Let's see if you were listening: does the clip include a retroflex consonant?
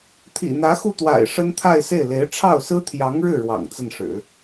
yes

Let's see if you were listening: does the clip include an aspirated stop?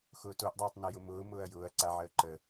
no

